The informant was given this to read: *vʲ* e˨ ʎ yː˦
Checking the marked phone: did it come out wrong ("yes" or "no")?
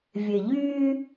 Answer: no